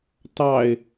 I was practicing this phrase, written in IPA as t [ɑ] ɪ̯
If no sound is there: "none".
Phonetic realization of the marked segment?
ɑ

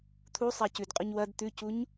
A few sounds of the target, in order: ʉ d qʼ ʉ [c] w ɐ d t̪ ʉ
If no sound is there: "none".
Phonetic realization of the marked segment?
ɲ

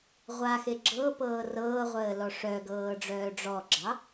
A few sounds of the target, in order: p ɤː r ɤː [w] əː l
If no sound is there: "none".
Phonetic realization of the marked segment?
ʁʷ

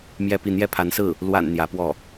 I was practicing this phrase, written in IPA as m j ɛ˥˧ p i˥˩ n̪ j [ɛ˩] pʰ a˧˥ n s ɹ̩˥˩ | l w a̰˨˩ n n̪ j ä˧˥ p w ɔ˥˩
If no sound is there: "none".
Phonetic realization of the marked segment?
ɛ˥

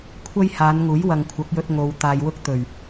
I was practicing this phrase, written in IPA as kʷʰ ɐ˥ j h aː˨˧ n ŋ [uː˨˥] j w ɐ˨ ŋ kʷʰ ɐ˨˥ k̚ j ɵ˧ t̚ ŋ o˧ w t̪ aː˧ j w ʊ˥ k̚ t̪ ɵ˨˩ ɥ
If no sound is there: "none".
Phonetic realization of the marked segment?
uː˨˥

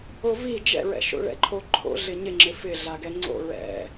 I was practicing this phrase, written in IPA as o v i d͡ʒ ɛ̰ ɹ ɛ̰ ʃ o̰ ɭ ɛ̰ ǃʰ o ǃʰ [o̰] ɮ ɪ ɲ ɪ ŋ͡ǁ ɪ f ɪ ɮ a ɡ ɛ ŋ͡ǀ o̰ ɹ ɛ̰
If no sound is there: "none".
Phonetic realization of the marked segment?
o̰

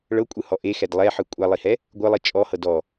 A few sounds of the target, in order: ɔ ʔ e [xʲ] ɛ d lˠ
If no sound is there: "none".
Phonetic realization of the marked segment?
x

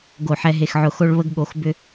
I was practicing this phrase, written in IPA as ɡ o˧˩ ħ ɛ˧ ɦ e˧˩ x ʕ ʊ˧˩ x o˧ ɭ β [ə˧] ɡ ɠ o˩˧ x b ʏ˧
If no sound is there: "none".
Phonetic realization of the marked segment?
ə˧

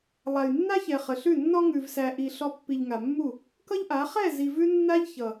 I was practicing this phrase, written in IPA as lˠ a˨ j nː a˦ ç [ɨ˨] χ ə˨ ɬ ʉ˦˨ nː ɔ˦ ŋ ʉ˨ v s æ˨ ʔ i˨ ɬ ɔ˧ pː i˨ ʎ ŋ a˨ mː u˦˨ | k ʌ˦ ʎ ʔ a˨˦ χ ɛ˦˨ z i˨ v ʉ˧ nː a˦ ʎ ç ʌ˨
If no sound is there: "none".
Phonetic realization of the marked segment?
ɛ˨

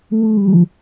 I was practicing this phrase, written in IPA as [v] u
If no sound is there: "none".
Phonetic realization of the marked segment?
w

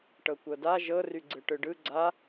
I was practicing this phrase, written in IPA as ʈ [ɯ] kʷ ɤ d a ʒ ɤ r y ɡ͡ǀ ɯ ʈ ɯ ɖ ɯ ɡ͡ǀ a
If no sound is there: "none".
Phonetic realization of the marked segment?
ɤ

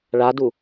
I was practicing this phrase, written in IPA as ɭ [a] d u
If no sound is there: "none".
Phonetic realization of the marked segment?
a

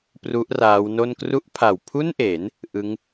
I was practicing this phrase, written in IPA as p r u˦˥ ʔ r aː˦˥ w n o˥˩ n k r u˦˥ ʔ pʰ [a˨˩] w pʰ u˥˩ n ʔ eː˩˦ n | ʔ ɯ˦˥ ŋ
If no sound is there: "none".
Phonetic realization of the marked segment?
a˨˩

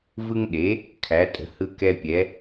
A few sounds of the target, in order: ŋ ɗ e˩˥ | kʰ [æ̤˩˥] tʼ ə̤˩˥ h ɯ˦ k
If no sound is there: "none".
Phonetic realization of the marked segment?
æ˩˥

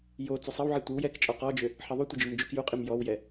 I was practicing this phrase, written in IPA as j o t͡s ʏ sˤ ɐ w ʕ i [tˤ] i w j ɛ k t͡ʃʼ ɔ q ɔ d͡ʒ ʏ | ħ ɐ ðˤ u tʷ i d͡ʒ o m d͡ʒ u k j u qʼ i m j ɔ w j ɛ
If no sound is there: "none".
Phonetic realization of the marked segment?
tʷ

